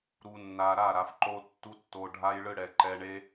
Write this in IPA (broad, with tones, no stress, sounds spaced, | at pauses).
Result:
ɾ u˨ nː a˨ ɾ a˦˨ ɾ a˨ f ǃ o˧ tː u˦ tː o˧ ɖʱ a˧ j ɭ ɯ˧ ɽ ɛ˨ ǃ ɛ˧ ɳ e˦